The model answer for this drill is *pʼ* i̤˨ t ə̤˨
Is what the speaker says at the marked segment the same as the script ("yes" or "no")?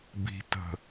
no